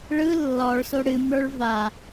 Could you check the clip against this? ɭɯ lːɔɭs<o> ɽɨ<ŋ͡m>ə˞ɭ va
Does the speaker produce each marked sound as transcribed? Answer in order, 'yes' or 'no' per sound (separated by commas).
yes, no